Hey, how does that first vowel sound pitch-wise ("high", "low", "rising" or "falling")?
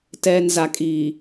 low